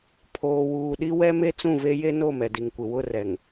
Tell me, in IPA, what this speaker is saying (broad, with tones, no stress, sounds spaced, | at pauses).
pʰ oː˨ w uː˨ ɗ i˦ w ɛ˦ m e˦ t͡s ũ˦˨ v e˦ j e˦ n o˦˨ m ɛ˨ d i˨ ŋ kʷ ɪ˨ w ʊ˦˨ r ɛ˨ ŋ